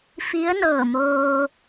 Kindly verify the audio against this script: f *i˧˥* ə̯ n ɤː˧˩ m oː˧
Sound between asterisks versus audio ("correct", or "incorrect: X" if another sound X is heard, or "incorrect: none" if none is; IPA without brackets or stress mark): correct